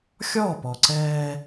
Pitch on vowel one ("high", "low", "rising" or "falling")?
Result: falling